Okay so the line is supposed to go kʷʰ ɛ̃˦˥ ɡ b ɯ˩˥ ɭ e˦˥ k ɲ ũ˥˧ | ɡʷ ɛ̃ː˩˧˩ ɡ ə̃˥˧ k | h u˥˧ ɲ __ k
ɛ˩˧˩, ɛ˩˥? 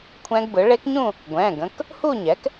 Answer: ɛ˩˥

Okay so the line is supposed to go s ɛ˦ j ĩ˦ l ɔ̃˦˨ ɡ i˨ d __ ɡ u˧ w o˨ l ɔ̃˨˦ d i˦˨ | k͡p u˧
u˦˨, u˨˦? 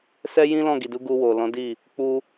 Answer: u˨˦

